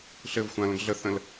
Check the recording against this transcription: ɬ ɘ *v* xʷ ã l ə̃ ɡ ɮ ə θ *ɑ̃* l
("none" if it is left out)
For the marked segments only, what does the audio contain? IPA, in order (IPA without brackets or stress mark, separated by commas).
v, ə̃